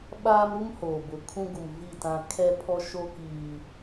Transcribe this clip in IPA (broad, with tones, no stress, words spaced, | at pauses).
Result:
ɓaː˦mɾu˦mhoː˨bʊ˨ kʰũ˦ ɡu˨m vi˦˨tã˦ kʰɛ˦ pʰɔ˦ʃo˦ kiː˨